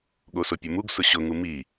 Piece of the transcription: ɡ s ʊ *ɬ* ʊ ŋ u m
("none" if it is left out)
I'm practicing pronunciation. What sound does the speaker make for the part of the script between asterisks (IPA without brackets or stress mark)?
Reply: ɕ